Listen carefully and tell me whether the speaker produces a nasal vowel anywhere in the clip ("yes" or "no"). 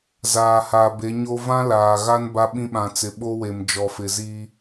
yes